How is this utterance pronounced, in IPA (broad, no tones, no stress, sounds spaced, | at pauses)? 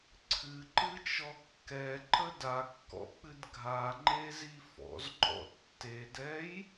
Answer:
ǀʰ ɨ ǃ ɨ t͡ʃ ɔ kː ɛ ǃ ə d a kː ɔ̰ k͡p ɨ d ɡʱ a ŋ͡ǃ e z i f ɔ̰ z ŋ͡ǃ ɔ̰ tː e d ɛ j